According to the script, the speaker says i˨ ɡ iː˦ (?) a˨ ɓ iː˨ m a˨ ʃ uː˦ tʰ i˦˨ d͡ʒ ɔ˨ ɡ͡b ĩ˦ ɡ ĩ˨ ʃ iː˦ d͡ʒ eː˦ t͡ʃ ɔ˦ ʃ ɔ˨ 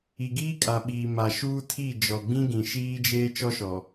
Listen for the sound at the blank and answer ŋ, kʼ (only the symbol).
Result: kʼ